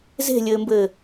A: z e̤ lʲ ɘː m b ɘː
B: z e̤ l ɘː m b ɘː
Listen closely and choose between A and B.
A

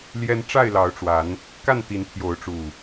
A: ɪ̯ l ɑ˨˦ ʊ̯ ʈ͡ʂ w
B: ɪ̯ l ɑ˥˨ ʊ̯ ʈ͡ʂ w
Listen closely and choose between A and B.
A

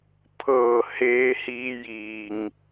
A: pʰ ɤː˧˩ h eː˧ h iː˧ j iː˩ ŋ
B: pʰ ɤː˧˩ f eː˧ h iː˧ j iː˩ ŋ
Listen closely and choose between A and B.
A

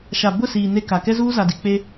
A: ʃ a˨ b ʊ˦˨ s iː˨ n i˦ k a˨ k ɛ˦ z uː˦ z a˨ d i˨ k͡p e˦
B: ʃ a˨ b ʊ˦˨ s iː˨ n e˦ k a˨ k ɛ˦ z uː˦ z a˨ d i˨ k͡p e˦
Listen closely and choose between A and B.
B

